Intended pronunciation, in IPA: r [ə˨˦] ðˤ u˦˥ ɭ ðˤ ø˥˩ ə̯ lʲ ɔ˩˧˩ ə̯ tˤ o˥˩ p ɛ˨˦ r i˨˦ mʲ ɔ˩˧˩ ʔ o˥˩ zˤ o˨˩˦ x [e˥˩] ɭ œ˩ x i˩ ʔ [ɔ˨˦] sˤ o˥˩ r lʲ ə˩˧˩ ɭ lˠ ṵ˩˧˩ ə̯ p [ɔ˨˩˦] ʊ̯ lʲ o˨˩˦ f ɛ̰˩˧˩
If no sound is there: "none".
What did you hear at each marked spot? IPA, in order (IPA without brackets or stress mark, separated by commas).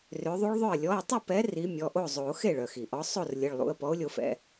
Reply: ø˨˦, e˥˩, ɔ˨˦, ɔ˨˦